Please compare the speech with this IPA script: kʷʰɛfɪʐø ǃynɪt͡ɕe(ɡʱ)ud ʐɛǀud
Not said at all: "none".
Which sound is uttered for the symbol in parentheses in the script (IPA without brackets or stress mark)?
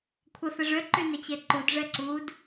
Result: ǃ